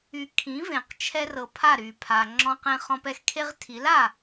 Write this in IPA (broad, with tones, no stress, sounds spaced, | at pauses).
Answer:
y˧ kʰ ĩ˩˥ v ẽ˩ q t͡ʃʰ ɛ˧ r ɤ˩ pʰ a˥˩ ɾ y˩ pʰ a˩ ŋ͡ǁ ɔ̃˧ q ẽ˧ χ ɔ̃˧ p ɛ˧ x kʰ e˥ ʁ tʰ i˩˥ l a˥˩